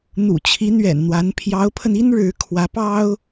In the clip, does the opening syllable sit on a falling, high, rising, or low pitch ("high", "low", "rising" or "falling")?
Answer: low